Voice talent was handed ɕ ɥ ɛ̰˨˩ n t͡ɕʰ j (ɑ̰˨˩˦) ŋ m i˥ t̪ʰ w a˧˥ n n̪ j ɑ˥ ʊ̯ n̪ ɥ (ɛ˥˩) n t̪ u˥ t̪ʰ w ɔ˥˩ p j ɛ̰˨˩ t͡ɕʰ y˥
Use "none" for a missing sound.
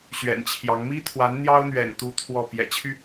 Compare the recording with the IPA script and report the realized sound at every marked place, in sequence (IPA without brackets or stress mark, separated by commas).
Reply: ɑ˧˥, ɛ̰˨˩